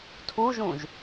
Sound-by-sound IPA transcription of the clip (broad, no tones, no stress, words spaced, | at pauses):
tʰuʒũʒ